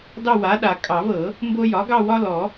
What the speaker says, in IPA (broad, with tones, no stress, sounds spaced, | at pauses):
d ɑ˦˨ w a˩˥ ɗ a˨˩˦ kʼ ɑ˨˩˦ v ɤ˨˩˦ | m b o˦ j ɒ˩˥ ɡ ɑ˦˨ w ɒ˦ l ɔ˨˩˦